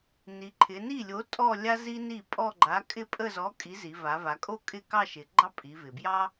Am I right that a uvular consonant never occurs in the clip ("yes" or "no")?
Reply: yes